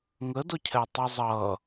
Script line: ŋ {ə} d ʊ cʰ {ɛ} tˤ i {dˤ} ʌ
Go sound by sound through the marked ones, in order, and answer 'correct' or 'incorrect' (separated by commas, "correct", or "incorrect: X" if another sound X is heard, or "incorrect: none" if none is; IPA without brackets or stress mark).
correct, correct, incorrect: zˤ